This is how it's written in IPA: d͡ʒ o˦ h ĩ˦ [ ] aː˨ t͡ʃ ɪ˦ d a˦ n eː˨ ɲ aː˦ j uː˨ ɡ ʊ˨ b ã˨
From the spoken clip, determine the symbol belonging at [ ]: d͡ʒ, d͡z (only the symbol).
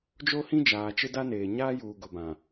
d͡ʒ